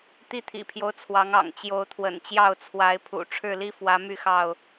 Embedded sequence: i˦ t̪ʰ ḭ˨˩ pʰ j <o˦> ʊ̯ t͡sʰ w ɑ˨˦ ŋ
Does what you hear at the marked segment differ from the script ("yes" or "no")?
no